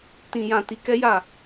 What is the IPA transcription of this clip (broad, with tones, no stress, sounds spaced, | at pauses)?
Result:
t ĩ˨ j ã˨ t i˧ k ɛ˦ j a˦˨